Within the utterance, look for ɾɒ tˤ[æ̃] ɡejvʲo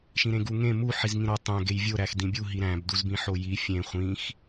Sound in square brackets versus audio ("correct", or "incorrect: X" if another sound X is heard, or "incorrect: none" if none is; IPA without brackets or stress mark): correct